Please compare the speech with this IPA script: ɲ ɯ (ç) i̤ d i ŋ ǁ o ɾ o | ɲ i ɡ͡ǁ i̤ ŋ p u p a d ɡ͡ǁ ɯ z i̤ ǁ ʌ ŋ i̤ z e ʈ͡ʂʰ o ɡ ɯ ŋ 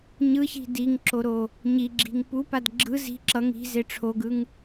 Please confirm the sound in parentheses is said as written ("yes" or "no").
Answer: yes